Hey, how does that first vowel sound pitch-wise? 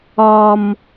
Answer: high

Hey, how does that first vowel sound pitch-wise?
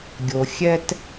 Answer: low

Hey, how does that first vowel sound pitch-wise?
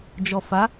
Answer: low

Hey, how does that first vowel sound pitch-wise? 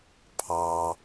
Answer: low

